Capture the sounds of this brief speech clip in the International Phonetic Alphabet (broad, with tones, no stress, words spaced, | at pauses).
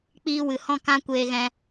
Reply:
k͡piː˧wɨ˨hɔ̃˦˨ kã˦kʷeː˧ ɣɛ̃˦